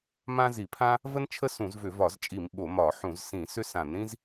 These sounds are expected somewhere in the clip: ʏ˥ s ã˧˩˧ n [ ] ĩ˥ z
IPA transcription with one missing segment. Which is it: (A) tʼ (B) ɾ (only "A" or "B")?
B